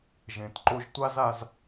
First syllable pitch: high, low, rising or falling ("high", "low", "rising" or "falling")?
low